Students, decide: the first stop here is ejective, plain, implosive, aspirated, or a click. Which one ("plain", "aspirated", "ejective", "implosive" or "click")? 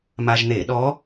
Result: implosive